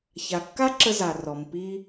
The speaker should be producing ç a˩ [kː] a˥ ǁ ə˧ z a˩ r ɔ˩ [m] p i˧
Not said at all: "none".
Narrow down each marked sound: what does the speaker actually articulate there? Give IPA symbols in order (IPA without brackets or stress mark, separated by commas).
kː, m